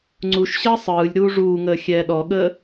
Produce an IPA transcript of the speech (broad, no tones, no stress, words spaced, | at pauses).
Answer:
ŋ͡ǀuʃɕəː sˤɯːlʲ ɾuːʐuːŋəː xʲɛːɗɔɠəː